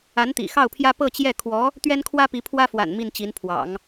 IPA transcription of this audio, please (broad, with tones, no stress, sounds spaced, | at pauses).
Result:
a˧˥ n t̪ ḭ˨˩ x ɑ˥˩ ʊ̯ pʰ j ä˥ p ɤ˥˧ t͡ɕ j ɛ˥˩ kʰ w ɔ˧˥ | t̪ ɥ ɛ˥ n kʰ w ä˥ p i˧˥ pʰ w ä˥ f w a̰˨˩ n m i˥˩ n t͡ɕ i˧˥ n pʰ w ɑ̰˨˩˦ ŋ